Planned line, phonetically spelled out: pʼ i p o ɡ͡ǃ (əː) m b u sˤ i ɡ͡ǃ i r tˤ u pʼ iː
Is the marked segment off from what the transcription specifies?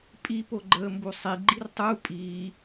no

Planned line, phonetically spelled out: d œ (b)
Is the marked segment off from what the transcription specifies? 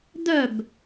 no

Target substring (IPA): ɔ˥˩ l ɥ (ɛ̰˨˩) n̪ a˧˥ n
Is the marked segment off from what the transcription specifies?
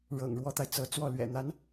no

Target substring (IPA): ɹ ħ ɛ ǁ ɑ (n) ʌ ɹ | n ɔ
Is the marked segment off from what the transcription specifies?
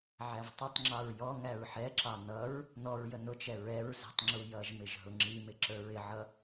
no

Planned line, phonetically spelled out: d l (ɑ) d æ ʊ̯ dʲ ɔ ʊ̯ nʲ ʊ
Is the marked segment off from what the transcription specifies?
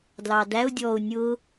no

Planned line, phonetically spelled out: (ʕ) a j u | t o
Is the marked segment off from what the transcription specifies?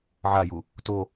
no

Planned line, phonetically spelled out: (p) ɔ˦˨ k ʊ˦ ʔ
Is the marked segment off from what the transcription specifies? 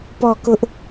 no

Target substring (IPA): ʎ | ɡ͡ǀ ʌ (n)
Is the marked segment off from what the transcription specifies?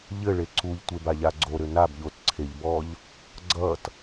yes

